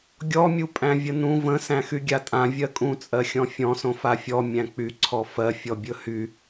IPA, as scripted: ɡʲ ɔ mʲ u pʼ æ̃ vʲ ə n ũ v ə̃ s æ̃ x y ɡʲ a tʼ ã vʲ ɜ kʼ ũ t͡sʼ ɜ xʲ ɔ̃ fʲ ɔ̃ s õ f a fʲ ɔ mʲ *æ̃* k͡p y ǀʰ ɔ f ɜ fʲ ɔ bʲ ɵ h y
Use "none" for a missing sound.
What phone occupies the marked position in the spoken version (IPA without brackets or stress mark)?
æ̃